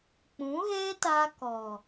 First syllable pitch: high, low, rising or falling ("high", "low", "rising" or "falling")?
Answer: rising